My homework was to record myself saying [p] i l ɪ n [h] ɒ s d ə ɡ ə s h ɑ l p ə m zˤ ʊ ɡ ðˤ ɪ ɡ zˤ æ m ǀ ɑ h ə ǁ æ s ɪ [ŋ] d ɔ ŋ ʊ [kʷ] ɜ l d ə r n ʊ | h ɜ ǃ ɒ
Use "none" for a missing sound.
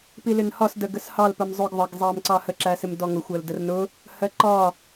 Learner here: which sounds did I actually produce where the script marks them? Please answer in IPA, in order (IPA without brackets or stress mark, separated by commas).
p, h, m, xʷ